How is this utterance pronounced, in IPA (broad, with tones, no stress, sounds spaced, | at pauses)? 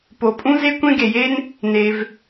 p o˩ pʼ ũ˥ z e˥ kʷ ẽ˥ ɡ e˩ j e˥ n | n e˩ v